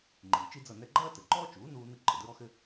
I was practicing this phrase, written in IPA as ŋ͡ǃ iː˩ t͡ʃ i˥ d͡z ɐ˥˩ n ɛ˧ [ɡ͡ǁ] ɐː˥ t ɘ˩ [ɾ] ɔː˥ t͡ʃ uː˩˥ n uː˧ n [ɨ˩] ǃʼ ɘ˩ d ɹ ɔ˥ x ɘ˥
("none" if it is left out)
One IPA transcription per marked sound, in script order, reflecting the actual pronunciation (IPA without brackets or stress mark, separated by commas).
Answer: ɡ͡ǃ, ǃ, ɨ˧